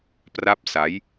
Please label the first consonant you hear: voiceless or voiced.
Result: voiceless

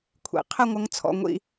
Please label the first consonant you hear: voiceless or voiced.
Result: voiceless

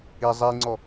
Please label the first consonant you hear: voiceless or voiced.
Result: voiced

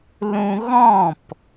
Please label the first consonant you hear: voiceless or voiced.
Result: voiced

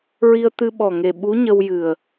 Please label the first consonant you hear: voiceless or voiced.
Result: voiced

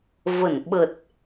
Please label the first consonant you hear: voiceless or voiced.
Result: voiced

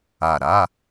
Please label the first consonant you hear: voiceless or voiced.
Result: voiced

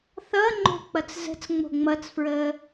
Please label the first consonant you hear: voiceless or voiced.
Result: voiceless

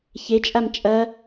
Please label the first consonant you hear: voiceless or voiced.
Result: voiceless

